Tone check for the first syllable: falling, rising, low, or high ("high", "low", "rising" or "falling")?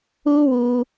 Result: high